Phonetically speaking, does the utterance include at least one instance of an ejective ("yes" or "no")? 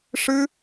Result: no